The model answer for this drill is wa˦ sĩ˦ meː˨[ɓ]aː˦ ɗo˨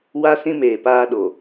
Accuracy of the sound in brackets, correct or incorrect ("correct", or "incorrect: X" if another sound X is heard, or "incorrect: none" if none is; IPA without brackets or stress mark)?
incorrect: p